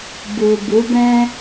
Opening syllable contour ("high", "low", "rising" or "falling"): low